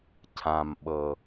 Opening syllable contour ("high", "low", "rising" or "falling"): low